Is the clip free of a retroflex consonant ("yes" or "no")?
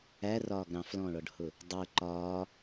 no